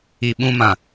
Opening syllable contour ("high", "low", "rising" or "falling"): low